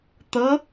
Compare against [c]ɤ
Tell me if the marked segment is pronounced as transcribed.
no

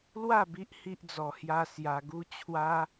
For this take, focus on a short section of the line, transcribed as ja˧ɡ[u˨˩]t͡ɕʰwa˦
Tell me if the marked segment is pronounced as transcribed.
no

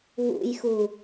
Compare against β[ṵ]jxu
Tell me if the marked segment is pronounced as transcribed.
yes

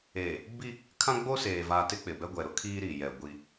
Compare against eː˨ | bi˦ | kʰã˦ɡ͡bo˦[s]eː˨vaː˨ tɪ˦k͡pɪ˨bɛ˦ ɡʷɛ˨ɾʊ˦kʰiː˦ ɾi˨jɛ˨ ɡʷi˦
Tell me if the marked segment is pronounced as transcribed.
yes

